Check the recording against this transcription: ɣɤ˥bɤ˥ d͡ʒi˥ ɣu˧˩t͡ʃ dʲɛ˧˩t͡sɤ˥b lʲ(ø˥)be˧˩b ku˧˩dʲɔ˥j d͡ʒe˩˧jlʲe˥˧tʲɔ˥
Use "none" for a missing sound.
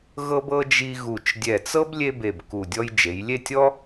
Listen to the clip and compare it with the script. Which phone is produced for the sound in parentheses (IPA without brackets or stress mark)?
e˥